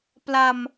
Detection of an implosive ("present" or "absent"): absent